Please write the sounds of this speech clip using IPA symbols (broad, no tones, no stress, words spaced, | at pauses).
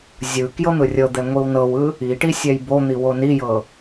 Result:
zʲɯ kjɤn̪ɯrʲɤd̪ɛ ŋʷiwnɤwɯ | iʈi sʲɛjbon̪i wonijɤ